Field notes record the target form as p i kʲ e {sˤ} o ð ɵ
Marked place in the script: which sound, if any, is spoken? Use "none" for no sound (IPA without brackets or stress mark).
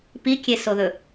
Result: s